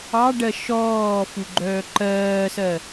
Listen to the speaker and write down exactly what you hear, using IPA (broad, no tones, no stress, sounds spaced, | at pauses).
ɑ ɖ ɜ ʃ ɔː f u ɡ͡ǃ œː ǃ ɜː s ɜ